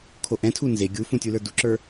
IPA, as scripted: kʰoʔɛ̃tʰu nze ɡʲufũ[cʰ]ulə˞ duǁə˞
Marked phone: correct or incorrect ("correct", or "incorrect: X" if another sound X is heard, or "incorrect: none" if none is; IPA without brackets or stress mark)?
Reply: incorrect: tʲ